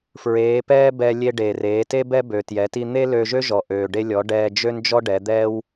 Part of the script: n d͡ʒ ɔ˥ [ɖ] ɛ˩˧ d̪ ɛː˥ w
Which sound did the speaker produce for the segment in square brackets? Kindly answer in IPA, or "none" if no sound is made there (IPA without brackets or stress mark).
ɖ